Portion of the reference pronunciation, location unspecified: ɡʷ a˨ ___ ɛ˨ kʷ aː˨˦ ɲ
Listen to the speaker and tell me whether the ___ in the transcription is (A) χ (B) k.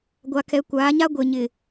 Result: B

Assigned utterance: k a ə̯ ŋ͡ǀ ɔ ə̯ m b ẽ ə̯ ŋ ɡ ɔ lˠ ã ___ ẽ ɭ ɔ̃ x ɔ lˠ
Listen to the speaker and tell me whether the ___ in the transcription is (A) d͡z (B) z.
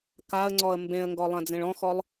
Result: A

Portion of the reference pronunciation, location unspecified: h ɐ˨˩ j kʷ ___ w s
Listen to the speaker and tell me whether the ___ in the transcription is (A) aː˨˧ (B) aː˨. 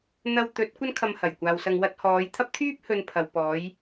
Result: B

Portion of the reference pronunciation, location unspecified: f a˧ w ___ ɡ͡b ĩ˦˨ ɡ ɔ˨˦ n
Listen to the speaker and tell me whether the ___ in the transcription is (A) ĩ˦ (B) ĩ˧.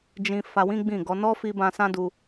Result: A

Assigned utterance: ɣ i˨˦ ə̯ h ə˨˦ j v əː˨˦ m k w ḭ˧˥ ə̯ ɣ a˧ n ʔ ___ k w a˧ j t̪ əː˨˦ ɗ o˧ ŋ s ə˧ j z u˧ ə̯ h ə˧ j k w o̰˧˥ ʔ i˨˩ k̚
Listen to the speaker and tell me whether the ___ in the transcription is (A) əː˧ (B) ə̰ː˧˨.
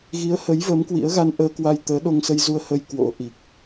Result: A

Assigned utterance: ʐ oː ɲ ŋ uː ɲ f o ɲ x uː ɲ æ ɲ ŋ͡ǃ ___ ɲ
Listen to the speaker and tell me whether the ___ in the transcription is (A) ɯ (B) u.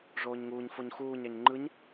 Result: A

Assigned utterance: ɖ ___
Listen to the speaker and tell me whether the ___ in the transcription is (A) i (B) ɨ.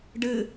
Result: B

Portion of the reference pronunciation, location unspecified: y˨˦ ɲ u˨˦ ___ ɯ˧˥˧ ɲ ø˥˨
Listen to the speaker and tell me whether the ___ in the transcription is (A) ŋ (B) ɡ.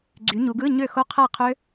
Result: B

